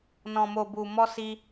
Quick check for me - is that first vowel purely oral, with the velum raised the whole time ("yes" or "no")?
no